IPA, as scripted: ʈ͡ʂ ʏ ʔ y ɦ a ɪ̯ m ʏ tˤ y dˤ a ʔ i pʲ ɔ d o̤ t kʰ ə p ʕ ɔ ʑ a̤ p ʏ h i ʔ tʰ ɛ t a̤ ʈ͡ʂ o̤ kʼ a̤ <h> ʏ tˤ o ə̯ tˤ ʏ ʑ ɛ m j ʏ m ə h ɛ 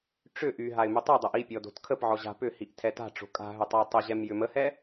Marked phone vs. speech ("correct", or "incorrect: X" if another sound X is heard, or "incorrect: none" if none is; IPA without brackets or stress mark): incorrect: ɦ